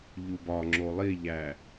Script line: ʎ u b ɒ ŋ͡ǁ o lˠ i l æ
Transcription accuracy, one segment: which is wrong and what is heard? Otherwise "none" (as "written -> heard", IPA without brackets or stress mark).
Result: l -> ʎ